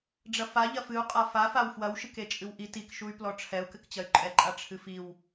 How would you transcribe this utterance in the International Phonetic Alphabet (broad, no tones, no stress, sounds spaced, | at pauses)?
ɖ͡ʐ ɐ f a ʎ ɐ f ɨ u̯ qʼ a f a f a w f w ɐ w ʃ ɨ k e t͡ʃʼ ɨ w ʔ i t i k ʃ u y̯ p l ɔ ʈ͡ʂʰ ɛ u̯ k ɘ k t͡ɕ ɐ y̯ ǃʼ ɛ ǃʼ a ʈ͡ʂʰ ɨ f i w